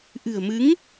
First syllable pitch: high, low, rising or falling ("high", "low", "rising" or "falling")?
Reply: low